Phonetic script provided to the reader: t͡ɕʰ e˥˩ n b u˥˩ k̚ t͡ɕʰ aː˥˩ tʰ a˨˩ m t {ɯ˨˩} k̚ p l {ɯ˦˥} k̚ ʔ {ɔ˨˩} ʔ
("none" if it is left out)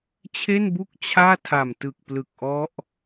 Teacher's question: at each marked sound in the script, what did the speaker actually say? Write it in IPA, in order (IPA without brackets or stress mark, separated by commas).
ɯ˨˩, ɯ˨˩, ɔ˦˥